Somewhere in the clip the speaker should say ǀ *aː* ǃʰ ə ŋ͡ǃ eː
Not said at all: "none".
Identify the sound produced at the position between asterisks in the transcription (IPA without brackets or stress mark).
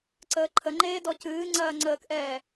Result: əː